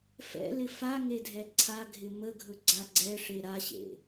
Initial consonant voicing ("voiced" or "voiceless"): voiceless